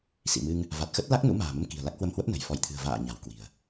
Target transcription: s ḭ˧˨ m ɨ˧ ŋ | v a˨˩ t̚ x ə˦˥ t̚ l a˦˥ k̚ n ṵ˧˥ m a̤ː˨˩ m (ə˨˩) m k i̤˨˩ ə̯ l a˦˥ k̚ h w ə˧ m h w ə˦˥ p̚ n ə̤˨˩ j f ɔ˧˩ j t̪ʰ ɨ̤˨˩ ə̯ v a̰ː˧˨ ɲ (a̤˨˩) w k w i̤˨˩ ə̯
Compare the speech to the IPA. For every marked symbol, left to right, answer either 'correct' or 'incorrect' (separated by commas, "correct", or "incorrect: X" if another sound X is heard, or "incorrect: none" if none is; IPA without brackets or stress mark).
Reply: incorrect: ə˧, correct